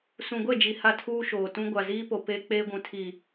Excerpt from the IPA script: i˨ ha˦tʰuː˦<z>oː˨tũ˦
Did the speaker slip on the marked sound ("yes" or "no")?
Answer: yes